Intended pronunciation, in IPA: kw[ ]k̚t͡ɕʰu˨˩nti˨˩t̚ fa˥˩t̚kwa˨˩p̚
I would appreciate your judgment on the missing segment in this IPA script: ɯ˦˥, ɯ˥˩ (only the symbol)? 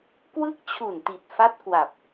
ɯ˦˥